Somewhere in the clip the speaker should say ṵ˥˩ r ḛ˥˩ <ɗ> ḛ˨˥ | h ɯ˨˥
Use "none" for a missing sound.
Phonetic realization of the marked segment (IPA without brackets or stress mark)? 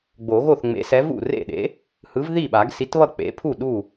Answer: ɗ